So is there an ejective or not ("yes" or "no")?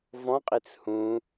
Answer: yes